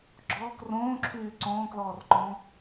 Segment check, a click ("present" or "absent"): present